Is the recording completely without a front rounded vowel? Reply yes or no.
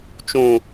yes